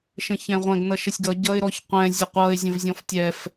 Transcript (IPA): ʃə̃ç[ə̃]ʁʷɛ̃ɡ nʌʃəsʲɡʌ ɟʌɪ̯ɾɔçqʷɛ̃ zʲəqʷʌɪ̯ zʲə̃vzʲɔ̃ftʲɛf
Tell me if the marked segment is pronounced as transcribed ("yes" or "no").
no